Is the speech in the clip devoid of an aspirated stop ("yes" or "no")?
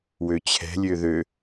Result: no